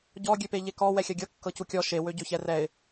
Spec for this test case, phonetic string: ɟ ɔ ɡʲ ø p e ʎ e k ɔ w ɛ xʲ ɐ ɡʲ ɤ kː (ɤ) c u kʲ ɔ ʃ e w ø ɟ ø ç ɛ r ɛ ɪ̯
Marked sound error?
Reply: no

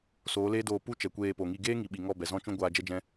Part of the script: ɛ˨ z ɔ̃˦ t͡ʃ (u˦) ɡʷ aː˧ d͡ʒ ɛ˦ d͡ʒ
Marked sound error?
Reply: yes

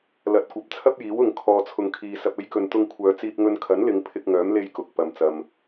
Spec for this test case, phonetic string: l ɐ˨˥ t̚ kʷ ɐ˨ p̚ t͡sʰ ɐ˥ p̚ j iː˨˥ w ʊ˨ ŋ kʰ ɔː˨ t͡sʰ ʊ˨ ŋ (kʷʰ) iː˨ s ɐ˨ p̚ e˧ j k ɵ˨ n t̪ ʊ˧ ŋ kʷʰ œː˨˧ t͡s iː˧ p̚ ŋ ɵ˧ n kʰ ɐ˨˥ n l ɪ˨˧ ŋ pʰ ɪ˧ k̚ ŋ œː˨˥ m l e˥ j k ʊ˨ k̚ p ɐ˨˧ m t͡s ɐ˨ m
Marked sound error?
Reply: yes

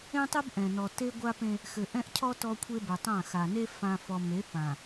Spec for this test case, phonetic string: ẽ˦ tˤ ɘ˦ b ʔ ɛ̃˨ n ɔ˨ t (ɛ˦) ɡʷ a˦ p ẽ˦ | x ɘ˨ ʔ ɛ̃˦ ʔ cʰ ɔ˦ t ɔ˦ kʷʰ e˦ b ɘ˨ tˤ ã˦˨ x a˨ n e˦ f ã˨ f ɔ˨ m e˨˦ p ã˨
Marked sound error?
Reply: yes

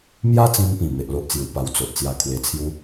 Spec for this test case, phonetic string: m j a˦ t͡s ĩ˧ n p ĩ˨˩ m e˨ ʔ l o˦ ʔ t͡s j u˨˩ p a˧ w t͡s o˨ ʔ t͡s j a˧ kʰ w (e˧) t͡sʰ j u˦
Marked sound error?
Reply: no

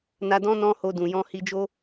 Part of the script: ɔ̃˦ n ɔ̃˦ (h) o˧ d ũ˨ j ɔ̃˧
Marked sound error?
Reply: no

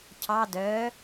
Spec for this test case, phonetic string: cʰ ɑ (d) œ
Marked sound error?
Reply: no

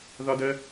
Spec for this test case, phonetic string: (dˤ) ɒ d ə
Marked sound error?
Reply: yes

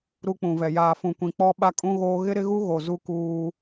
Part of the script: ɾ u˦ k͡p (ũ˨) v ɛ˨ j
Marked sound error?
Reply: no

